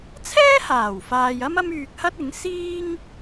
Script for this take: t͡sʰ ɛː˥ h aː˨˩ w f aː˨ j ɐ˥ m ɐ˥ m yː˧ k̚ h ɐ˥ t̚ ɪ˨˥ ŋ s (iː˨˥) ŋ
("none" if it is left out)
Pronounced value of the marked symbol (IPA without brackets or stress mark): iː˥